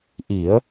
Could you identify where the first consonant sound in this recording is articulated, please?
glottal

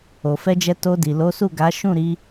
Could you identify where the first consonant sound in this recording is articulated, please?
labial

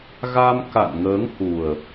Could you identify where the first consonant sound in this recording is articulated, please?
velar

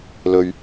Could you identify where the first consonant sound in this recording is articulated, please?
alveolar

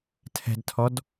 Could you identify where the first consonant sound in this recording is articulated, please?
alveolar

